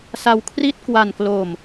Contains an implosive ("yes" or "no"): no